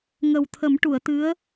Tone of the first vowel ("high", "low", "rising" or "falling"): low